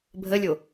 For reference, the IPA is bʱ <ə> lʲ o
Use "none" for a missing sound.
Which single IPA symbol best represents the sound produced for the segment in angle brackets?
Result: ə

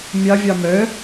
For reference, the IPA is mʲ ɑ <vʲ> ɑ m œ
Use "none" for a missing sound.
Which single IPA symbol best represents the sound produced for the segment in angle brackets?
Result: vʲ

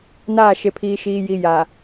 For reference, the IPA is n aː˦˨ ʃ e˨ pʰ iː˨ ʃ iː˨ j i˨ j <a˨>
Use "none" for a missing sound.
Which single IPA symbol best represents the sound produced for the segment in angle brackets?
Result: a˨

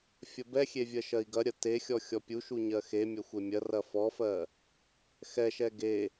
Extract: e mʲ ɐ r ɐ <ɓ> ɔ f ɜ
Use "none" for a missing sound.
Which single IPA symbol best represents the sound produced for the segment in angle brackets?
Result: f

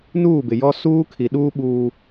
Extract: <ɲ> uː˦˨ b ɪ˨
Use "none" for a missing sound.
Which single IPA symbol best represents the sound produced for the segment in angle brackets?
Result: n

